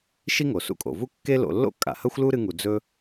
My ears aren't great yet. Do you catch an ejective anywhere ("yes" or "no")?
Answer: yes